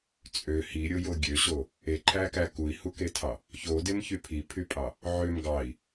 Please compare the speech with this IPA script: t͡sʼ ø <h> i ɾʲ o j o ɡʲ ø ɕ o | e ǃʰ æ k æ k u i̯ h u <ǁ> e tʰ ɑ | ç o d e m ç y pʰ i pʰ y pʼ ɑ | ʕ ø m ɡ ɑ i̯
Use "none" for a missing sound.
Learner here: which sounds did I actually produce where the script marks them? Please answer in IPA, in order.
h, k

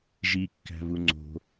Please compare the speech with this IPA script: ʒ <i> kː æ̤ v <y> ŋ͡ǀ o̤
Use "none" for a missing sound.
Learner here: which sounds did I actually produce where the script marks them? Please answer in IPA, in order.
i, u

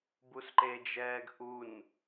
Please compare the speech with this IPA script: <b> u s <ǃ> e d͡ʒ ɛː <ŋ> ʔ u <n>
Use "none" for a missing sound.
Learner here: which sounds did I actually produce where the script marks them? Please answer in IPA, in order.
b, ǃ, ɡ, n

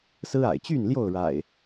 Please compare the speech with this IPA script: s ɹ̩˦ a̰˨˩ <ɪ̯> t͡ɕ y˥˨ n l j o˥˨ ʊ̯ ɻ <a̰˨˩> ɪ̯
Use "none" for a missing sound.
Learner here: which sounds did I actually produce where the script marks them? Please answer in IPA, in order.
ɪ̯, a̰˨˩

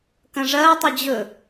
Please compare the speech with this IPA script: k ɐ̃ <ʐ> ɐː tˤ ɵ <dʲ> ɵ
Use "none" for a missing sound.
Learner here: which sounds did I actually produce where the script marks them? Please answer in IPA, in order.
ʐ, d͡ʑ

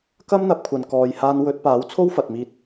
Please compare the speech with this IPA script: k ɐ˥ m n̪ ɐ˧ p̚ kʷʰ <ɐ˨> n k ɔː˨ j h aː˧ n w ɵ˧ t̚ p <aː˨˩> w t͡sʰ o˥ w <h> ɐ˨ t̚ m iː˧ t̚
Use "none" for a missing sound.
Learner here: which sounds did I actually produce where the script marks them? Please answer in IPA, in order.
ɐ˨, aː˨˥, f

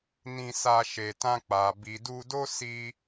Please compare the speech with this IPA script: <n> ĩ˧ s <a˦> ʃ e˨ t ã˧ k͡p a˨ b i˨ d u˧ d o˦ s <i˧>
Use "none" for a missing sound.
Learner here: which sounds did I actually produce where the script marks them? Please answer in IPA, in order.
n, a˧, i˧

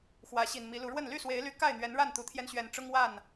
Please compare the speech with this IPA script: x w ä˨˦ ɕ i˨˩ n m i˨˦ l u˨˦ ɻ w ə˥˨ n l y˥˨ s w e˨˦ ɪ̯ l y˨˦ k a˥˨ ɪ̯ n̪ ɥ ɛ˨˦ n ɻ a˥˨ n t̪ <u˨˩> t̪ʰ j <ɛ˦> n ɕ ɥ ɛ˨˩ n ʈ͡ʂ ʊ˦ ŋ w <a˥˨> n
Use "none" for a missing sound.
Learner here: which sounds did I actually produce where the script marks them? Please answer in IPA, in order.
u˨˩, ɛ˦, a˥˨

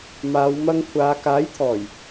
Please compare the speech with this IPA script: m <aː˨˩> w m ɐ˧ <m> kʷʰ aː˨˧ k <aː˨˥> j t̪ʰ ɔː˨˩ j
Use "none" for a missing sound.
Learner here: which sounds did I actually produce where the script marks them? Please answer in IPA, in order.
aː˨˧, ŋ, aː˨˥

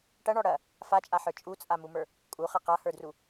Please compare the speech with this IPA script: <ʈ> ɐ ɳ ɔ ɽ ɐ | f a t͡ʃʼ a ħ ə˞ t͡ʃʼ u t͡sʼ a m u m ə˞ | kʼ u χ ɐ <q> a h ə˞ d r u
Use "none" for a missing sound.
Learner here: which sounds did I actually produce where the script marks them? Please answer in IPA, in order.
ʈ, q

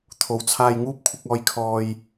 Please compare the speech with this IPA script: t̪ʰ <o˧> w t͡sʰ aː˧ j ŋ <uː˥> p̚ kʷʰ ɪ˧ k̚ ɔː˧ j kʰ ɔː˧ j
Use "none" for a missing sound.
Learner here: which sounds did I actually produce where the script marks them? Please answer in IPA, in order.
o˨, uː˥

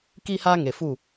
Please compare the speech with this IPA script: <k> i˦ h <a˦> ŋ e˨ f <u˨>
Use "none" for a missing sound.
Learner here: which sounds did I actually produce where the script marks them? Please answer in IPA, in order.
k, a˦, u˦˨

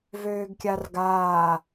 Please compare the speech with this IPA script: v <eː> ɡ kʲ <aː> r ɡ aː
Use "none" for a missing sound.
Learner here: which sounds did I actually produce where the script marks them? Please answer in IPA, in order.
øː, a

